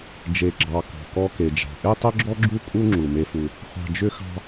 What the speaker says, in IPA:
d͡ʒ e˩ ɡ͡ǁ ɑ˩ k ɔ̤˩ k ɔ˧ k e˩ d͡ʒ ɑ̤˩ ʔ e˥ tˤ ʏ˥ ɡ͡ǁ ɔ˥ ɡ͡ǁ u˥ kʼ u˥ ŋ͡ǁ u˩ m e˧ f u˧ | χʷ ɑ̤˧ d͡ʒ ʏ˥ x ɑ̤˥

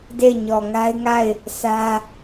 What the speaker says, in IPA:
d e˦˨ ɪ̯ ɲ ɔ˨ ŋ a˦ ɪ̯ ŋ a˦˨ ɪ̯ | s ä˦

